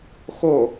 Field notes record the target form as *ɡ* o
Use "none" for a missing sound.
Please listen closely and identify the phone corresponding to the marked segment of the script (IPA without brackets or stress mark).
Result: x